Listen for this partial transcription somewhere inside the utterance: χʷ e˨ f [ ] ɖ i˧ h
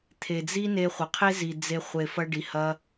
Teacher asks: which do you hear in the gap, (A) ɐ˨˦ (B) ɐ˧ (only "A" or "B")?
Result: B